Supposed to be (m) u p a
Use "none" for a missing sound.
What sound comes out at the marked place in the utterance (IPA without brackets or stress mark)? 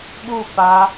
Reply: ɓ